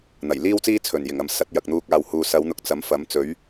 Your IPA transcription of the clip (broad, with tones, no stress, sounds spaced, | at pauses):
n̪ ɐ˨˩ j l iː˥ w t͡s iː˥ t͡sʰ ɵ˨˩ n j ɪ˨˩ ŋ ɐ˨ m s ɐ˨˥ t̚ j ɐ˨ k̚ n̪ uː˧ k̚ aː˨ w h uː˨ s ɐ˨˧ w n̪ ʊ˨˥ k̚ t͡s ɐ˨˥ m f ɐ˨˥ m t͡s ɵ˨˥ ɥ